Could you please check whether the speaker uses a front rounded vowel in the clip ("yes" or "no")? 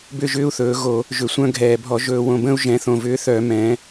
yes